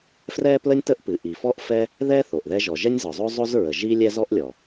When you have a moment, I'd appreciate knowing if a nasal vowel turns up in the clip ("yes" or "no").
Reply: no